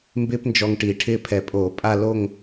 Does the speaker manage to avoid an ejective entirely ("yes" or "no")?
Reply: no